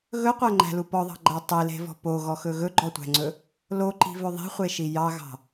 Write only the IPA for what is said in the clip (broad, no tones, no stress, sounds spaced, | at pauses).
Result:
ɣ ɵ qʷ æ ŋ͡ǃ æ̤ l u p ɔ ðˤ ɑ̤ ɡ͡ǃ æ tˤ i l e̤ v ɔ̤ p o ɣ ɔ x ɵ ɣ ɵ ɡ͡ǃ ɔ tʷ æ̤ ŋ͡ǀ ɵ | l o ǃ i̤ v ɵ ðˤ i̤ χʷ e ʃ i j ɑ ɣ ɑ̤